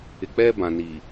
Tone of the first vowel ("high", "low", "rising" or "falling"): low